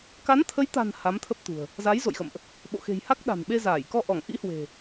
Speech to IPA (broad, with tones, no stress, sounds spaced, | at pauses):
k a˨˦ n t̪ʰ ə˨˦ j t̪ a̤˨˩ n h a˨˦ m t̪ʰ ə˦˥ p̚ t̪ ṳ˨˩ ə̯ | z a˨˦ j z o̰˧˨ j x ə̰˧˨ m ʔ | ɓ o̰˧˨ x e̤˨˩ j h a˦˥ k̚ ɗ a̤˨˩ n ɓ e˧ z aː˧˩ j k ɔ˧ ʔ ɔ˧˩ ŋ ʔ ḭ˧˥ h w e̤˨˩